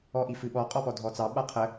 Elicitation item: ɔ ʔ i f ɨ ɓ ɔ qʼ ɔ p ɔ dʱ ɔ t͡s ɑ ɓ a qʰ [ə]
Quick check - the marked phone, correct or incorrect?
correct